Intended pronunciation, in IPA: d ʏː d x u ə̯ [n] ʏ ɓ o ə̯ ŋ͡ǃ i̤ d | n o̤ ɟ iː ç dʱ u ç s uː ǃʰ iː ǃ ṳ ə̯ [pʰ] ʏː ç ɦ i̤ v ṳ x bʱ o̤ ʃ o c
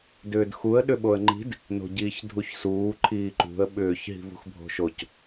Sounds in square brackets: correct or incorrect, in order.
incorrect: ɗ, incorrect: ɓ

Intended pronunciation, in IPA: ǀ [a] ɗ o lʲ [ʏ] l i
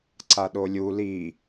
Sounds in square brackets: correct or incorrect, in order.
correct, incorrect: u

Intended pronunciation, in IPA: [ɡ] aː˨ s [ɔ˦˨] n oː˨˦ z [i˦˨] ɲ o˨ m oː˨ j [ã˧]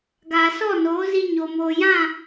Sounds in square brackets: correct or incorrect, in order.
correct, correct, incorrect: i˧, incorrect: ã˦˨

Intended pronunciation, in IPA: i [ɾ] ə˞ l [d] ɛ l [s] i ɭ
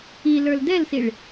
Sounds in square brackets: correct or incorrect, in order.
incorrect: l, correct, correct

